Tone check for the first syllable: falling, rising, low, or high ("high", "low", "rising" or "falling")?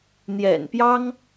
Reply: low